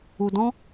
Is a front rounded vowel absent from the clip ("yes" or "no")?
yes